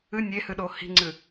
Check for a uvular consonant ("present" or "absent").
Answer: absent